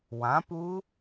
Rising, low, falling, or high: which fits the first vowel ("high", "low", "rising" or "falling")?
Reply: rising